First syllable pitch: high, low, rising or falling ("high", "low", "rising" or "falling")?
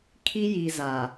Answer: high